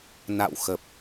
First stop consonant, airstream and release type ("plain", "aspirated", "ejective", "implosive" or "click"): plain